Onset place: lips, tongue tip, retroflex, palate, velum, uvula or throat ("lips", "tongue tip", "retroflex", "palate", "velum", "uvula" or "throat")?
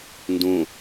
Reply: tongue tip